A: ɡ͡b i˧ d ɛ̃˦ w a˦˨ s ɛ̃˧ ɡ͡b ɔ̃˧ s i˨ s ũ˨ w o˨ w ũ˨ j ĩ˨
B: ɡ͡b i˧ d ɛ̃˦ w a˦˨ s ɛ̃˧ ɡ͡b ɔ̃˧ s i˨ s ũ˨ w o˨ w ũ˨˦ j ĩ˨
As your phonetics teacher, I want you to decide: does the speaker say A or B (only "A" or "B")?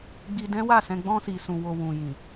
A